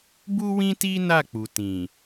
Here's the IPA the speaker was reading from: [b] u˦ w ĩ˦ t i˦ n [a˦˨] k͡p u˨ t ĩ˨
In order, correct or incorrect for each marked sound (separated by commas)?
correct, correct